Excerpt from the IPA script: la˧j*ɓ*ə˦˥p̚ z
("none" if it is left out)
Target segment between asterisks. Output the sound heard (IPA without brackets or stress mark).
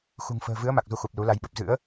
ɓ